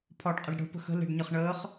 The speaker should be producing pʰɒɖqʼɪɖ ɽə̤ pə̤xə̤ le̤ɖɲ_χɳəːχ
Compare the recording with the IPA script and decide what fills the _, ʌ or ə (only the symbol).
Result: ə